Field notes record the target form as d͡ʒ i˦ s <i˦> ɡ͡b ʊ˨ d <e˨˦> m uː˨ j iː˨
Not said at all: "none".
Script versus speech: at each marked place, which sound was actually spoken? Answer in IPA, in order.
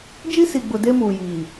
i˨, e˦

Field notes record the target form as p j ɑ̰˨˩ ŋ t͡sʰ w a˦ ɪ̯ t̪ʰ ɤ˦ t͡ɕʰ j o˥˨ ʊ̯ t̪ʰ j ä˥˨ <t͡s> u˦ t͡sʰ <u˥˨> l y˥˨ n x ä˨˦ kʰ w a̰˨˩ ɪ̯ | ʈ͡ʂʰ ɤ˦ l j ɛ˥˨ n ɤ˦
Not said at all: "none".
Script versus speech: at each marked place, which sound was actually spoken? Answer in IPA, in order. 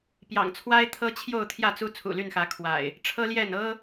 t͡s, ṵ˨˩

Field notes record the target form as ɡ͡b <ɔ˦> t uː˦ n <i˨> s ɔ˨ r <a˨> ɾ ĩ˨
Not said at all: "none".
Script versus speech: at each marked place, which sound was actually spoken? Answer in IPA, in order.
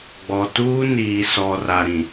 ɔ˨, iː˨, a˨

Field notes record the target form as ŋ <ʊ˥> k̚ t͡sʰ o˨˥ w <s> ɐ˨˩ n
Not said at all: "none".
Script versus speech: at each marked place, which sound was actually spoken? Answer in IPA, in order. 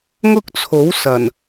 ʊ˥, s

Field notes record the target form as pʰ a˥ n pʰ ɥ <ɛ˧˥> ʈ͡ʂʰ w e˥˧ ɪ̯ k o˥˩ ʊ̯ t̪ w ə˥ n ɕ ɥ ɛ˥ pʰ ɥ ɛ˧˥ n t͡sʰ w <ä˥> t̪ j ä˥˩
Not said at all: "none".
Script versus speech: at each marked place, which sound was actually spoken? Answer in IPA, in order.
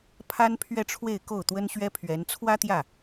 ɛ˥˧, ä˥

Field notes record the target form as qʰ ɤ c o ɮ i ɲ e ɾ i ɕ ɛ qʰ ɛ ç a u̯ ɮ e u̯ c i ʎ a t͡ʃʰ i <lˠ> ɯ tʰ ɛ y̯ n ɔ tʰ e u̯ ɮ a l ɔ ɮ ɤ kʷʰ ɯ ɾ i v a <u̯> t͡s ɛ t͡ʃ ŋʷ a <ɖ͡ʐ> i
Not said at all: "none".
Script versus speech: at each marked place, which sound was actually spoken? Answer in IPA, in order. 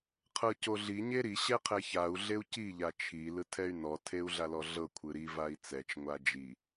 l, i̯, d͡ʒ

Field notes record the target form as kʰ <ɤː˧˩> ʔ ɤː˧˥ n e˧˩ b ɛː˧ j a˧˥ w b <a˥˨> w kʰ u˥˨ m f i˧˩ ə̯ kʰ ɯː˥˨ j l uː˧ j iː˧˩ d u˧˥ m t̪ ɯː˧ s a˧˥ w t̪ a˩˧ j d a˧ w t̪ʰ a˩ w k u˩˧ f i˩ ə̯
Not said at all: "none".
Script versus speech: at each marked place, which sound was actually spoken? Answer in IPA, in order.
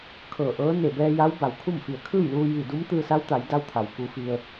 ɤː˧˩, a˩˧

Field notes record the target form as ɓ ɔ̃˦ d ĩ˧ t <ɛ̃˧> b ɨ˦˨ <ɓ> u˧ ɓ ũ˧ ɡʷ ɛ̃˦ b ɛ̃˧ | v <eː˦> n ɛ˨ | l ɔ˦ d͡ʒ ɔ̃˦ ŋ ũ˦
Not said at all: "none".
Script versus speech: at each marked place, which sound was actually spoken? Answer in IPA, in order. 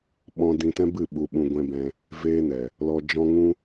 ɛ̃˦, ɓ, eː˦

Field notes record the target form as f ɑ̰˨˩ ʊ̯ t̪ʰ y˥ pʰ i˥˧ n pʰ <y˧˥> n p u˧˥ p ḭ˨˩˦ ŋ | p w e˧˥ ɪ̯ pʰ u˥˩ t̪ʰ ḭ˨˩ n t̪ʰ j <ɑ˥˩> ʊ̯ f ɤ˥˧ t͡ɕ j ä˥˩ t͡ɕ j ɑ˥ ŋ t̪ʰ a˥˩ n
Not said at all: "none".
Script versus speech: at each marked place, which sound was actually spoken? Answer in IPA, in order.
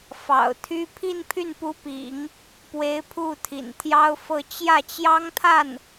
y˥˩, ɑ˥

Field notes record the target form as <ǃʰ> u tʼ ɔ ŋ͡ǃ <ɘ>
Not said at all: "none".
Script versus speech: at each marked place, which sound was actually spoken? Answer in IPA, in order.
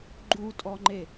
ɡ͡ǃ, e

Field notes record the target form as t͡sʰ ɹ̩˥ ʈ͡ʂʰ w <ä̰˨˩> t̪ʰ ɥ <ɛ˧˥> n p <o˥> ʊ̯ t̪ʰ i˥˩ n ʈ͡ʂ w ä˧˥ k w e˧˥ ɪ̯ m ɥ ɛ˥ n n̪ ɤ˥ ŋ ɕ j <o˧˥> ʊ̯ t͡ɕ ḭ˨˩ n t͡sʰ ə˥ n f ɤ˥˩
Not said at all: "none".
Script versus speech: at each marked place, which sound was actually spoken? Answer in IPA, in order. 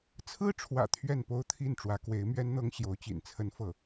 ä̰˨˩, ɛ˥˩, o˥, o˧˥

